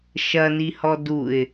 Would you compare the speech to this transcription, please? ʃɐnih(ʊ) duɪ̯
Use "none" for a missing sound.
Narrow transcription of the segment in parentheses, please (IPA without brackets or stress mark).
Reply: ɔ